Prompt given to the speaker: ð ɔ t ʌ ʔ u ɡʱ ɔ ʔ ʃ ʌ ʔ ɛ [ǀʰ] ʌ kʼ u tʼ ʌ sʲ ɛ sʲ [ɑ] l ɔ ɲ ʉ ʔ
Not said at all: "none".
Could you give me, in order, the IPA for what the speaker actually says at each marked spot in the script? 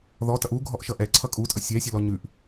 ǀʰ, ʌ

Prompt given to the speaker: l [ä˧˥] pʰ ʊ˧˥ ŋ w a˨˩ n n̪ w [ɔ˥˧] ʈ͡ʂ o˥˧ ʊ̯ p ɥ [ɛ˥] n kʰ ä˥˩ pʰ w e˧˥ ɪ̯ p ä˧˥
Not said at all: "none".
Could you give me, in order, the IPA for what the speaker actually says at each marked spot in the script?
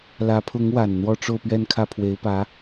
ä˧˥, ɔ˥˧, ɛ˥˧

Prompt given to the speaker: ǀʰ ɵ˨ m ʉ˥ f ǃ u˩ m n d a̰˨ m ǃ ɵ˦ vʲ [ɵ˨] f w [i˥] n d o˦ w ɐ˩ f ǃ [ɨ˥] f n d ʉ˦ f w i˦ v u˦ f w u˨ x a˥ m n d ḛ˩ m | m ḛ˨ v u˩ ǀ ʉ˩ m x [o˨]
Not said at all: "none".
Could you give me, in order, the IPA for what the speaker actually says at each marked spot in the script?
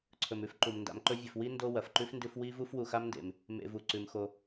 ɵ˨, i˥, ʉ˥, o˨

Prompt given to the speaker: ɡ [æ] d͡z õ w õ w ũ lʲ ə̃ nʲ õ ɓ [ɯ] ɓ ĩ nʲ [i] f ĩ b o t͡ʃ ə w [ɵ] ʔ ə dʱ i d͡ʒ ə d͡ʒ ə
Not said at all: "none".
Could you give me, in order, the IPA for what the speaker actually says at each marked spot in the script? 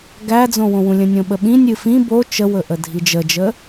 æ, ə, ɨ, ɵ

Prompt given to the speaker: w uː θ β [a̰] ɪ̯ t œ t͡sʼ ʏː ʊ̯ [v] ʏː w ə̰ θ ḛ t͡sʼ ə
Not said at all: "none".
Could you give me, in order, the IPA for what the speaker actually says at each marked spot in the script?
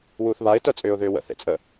a, ð

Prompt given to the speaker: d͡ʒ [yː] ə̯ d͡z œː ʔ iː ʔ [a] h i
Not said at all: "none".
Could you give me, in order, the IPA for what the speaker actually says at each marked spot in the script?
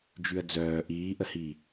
y, ə

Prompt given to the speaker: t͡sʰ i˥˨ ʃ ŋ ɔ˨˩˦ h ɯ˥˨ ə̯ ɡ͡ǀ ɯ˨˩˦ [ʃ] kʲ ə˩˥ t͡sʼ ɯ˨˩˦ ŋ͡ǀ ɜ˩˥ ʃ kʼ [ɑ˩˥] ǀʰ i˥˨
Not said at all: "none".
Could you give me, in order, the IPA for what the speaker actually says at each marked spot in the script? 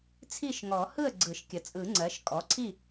ʃ, ɔ˩˥

